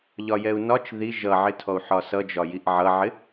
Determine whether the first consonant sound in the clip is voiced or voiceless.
voiced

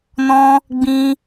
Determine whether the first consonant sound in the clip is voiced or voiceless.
voiced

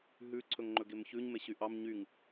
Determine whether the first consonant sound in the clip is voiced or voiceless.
voiced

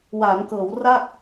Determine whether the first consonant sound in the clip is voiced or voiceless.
voiced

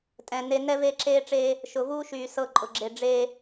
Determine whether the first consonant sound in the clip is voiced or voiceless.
voiceless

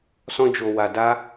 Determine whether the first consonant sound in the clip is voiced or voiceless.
voiceless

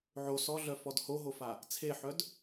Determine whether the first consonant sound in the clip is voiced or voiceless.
voiced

